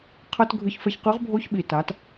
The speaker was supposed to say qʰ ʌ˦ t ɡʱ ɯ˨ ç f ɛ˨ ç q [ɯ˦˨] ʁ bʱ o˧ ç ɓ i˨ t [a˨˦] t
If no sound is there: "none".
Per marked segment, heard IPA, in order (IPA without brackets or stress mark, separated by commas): ɯ˨˦, a˨˦